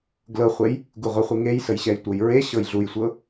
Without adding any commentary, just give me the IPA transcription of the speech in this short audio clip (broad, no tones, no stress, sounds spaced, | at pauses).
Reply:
ɡ l ɤ χʷ e j | ɡ u ʁʷ ə χʷ i ŋ e j s ə j ɕ ɛ j tʷ ɤ j ɹ e ɕ ɤ j ɮ u j sʷ ɤ